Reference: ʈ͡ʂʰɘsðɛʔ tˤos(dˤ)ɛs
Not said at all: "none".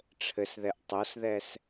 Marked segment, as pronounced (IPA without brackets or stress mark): ð